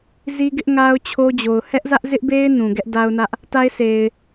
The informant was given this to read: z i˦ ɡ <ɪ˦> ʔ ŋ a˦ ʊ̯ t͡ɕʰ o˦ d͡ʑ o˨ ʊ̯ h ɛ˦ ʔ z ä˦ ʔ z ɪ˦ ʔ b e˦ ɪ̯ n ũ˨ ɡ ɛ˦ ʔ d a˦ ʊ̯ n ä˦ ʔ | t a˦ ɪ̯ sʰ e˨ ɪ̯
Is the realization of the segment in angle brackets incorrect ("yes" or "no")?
no